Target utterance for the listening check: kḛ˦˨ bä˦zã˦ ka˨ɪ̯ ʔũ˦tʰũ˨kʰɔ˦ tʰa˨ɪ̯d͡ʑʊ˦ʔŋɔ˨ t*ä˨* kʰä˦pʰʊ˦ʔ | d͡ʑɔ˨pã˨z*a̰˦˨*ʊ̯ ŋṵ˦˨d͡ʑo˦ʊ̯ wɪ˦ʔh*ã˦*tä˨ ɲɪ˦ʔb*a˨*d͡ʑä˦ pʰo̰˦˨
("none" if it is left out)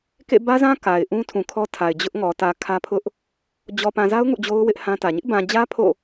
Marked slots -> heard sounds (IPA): ä˨, a˦, ã˦, ã˨

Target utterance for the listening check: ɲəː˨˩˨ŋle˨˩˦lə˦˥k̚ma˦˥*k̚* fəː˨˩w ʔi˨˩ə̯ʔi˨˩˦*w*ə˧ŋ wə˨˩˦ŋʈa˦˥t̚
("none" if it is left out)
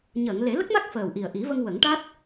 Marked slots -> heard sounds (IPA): k̚, v

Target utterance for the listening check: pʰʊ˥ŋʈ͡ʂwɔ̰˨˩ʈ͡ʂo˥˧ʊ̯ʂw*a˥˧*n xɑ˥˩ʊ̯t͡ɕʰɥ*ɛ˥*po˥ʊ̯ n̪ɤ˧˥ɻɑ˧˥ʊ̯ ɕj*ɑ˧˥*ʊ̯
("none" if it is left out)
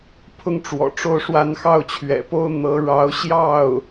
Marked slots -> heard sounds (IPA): a˥˧, ɛ̰˨˩, ɑ˥˩

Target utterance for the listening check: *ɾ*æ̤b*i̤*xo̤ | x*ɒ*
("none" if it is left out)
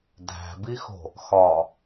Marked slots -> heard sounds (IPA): dʱ, i, ɒ

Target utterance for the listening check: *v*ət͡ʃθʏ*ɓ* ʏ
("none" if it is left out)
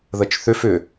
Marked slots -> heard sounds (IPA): ð, f

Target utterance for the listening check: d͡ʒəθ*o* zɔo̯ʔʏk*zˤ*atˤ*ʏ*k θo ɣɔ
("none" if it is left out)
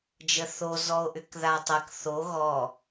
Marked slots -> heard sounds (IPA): o, ð, ə

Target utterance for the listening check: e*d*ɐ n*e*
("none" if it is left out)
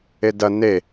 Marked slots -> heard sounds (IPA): d, e

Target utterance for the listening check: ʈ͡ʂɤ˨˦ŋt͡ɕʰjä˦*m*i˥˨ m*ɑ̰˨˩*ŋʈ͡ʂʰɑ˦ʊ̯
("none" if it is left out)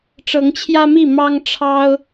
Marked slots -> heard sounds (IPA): m, ɑ˦

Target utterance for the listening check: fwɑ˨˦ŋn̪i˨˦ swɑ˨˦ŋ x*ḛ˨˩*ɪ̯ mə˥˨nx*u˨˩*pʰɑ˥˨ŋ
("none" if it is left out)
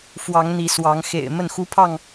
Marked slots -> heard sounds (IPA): ḛ˨˩, u˦

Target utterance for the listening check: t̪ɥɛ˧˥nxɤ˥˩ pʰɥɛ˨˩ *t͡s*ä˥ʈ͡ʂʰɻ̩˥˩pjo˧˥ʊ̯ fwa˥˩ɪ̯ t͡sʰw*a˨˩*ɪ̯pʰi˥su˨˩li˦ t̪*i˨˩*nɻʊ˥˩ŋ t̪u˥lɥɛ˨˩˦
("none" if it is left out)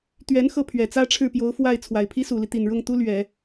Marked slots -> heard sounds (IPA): t͡s, a˨˩, i˨˩

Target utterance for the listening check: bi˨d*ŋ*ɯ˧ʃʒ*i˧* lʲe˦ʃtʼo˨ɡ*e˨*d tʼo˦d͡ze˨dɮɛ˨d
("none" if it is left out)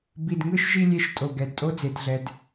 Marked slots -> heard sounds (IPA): ŋ, i˧, ɛ˨

